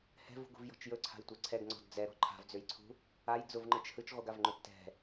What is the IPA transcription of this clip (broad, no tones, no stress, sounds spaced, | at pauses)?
h ɛ̤ v ṳ ɡ ṳ v j ɔ̤ t͡ʃ j ɵ ǀʰ a̤ j tʷ ɛ ǀʰ ɛ ɡ ŋ͡ǀ ɔ̤ d d͡z ɛ ɾ ɔ̤ ǃʰ a̤ v d͡z ø j ǀʰ ṳ | a j d͡z ʊ v ŋ͡ǃ ɯ t͡ʃ h ɯ t͡ʃ ʁʷ ɯ ɡ a v ŋ͡ǃ ʊ tː ɛ̤